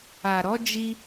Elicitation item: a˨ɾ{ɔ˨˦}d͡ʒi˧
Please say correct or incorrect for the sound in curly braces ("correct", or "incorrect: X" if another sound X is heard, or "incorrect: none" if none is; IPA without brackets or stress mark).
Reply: correct